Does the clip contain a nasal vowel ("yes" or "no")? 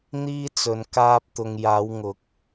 no